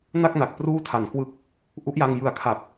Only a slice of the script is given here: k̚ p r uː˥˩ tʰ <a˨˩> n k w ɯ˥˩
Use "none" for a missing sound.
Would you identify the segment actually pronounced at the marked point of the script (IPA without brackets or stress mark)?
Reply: a˨˩